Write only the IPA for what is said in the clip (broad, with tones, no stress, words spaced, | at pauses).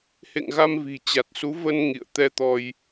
hḛ˧˨ŋɣa˧m vi̤˨˩t͡ɕa˨˩t̚su˨˦ və˧n ŋḭ˧˨ə̯ t̪ɛ˧t̪ɔ˧j